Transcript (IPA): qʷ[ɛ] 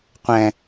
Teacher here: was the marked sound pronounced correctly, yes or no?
no